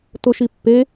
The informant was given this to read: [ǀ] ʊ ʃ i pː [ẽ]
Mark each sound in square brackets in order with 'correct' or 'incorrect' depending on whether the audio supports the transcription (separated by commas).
incorrect, incorrect